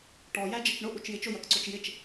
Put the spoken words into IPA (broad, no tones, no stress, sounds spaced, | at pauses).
ʈ ɔ j æ d͡ʒ ə t͡ʃ ɳ ʊ ʔ u t͡ʃ j ɪ t͡ʃ ʊ j ɜ k ǀ ʊ t͡ʃ j ɪ t͡ʃ